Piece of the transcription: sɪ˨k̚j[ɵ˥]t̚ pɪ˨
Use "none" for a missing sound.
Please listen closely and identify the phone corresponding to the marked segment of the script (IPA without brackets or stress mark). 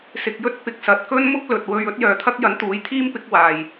ɵ˥